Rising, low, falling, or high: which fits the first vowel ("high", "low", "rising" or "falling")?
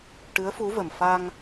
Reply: rising